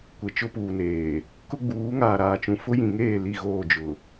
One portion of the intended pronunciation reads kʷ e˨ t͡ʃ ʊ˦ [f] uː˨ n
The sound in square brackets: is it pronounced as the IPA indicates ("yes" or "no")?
no